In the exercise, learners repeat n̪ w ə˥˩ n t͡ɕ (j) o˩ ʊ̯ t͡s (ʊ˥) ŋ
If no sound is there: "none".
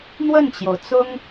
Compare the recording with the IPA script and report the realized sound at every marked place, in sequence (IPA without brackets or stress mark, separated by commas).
j, ʊ˥